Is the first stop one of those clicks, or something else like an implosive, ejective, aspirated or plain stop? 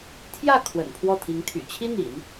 aspirated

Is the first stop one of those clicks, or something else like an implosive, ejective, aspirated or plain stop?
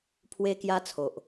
aspirated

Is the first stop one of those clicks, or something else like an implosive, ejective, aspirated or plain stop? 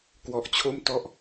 plain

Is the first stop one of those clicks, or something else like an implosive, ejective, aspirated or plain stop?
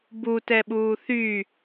plain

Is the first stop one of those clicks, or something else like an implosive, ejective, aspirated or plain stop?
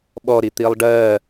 implosive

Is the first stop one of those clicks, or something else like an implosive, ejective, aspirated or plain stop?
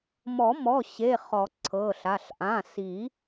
click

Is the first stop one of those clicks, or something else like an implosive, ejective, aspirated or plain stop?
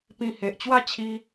plain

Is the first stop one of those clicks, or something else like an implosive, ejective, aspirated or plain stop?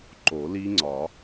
click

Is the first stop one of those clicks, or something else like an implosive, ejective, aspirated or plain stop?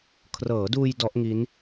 aspirated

